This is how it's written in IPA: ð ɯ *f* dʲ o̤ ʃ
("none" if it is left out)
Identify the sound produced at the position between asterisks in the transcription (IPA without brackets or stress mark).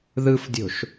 f